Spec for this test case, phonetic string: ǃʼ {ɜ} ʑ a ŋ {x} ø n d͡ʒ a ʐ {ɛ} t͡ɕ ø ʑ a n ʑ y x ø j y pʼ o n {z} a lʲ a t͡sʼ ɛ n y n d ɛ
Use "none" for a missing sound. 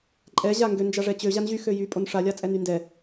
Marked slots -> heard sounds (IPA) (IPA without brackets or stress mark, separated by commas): ɛ, ɡ, ɛ, ʂ